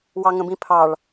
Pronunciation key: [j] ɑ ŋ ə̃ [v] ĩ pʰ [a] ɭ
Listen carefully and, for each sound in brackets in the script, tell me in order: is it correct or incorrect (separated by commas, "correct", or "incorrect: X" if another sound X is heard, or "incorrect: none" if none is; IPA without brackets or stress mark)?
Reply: incorrect: w, incorrect: b, incorrect: ɑ